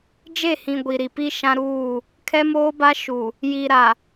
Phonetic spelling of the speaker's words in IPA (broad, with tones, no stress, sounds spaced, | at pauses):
d͡ʒ e˦˨ h ĩ˨ ɡʷ i˨ ɾ i˨ p i˦ ʃ ã˦ ɾ uː˦˨ | kʰ ɛ˦ m oː˦ b a˦ ʃ u˨ | j i˨ ɾ a˨